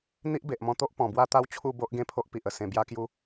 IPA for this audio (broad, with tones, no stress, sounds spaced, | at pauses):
n̪ i˦ ʔ b e˨ ʔ m ɔ̃˧ t̪ o˦ ʔ p ɔ̃˨˩ b w a˦ t̪ a˦ w t͡ɕʰ u˥˧ b o˦ ʔ ɡ ẽ˥˧ pʰ o˦ ʔ p i˨ ʔ ə˧ s ẽ˧ b j a˦ k j u˦